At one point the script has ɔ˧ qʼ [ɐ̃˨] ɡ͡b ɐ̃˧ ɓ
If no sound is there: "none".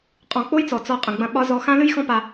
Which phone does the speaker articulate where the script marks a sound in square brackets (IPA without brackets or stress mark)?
ə̃˨